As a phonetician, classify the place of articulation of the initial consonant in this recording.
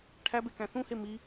retroflex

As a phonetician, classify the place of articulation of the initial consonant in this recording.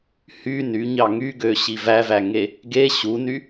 glottal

